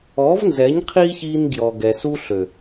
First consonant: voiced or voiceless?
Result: voiced